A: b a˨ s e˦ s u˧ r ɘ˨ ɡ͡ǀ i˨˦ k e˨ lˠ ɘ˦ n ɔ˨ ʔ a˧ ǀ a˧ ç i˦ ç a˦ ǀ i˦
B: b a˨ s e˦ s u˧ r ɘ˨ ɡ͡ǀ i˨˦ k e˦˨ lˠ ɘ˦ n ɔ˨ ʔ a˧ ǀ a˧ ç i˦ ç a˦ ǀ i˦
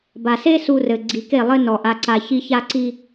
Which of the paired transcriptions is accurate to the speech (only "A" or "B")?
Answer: B